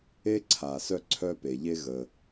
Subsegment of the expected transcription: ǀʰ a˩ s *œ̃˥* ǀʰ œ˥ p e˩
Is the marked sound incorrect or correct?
incorrect